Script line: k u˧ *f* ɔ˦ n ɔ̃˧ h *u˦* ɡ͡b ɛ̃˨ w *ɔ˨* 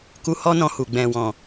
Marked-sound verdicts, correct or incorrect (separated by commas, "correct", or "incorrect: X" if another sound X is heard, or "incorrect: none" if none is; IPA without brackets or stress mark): incorrect: h, incorrect: u˨, incorrect: ɔ̃˨